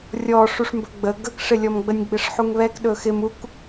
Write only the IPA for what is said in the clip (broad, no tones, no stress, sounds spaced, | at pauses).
rʲ ɔ ʂ u ʂ m b ɵ ɡ͡b ə ɡ ə k ʂ ɪ lʲ ɔ m ɡ͡b ə nʲ ɡ͡b ɪ ʂ ħ u ŋ β ɛ k ɗ ɵ x ɪ m u k